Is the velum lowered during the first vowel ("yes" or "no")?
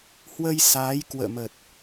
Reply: no